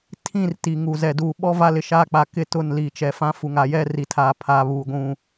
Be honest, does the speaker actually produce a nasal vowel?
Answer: yes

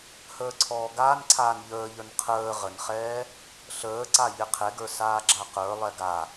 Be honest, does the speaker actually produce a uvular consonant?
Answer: yes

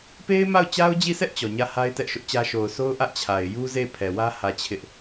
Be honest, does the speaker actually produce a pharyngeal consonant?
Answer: no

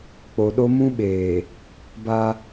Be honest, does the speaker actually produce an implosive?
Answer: yes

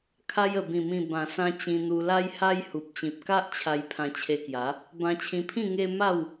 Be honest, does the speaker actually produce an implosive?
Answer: no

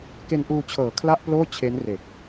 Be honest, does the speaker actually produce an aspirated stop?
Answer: yes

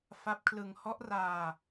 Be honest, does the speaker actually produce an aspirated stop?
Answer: yes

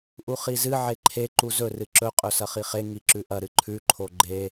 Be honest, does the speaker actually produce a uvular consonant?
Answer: yes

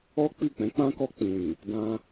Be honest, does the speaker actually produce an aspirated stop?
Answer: no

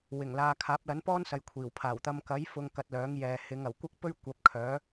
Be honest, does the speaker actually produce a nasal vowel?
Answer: no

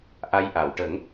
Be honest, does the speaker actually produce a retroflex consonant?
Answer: yes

